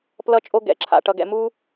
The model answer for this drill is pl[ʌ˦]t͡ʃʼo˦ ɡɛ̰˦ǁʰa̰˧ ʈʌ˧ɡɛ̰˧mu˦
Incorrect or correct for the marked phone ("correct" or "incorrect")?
correct